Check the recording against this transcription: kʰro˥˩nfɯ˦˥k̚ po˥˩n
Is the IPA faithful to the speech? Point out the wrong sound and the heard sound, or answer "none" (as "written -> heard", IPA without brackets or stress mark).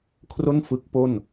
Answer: none